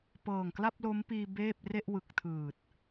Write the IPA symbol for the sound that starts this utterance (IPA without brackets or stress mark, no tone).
p